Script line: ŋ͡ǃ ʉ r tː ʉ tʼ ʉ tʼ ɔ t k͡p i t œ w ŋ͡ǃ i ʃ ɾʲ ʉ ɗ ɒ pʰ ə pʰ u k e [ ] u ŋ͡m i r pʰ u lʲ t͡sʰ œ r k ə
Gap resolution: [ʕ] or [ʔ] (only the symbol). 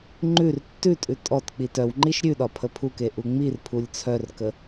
ʔ